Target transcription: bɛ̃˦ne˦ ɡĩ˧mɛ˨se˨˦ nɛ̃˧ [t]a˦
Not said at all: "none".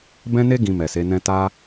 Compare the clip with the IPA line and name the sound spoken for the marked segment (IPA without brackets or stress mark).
t